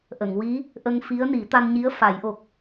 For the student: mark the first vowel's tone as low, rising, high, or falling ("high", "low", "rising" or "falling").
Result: low